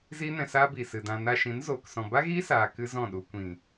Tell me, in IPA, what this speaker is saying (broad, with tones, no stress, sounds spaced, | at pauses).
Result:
z iː˦ n ɛ̃˧ s aː˦ b iː˨ s ɨ˨ d ã˧ n a˧ ʃ ĩ˨˦ n z oː˨ k s ɔ̃˨ b a˦ ɣ iː˦ s aː˧ k ɨ˦ z ɔ̃˦˨ ɗ u˧ kʷ ĩ˨